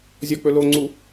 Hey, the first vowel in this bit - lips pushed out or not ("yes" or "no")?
yes